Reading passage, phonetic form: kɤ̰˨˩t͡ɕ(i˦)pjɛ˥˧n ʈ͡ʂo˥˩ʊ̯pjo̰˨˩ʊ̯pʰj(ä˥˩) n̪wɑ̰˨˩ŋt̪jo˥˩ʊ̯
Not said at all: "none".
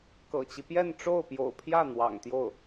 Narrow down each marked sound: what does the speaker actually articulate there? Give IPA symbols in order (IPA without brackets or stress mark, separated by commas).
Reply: i˦, ä˥˩